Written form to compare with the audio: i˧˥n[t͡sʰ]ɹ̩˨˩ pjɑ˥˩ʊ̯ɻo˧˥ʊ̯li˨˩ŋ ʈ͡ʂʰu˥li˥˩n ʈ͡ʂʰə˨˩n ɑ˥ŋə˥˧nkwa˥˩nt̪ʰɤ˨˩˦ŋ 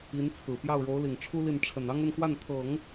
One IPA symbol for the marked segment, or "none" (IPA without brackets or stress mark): t͡sʰ